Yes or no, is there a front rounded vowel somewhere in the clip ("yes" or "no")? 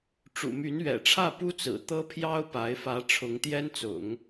yes